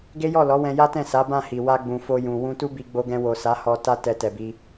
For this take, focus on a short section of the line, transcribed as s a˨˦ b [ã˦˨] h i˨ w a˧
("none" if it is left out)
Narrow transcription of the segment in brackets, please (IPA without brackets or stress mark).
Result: ã˦˨